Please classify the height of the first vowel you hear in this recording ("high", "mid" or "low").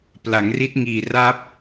low